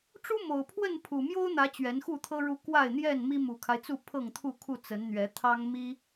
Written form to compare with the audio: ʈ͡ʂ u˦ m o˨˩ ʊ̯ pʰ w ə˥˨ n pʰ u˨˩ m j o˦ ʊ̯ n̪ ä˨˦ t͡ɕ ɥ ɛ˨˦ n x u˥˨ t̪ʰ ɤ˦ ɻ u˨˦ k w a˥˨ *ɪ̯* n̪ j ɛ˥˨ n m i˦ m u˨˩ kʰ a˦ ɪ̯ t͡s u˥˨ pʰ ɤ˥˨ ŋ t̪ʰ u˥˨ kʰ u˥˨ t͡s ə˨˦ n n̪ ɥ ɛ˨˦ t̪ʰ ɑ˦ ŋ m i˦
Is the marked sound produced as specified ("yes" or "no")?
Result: yes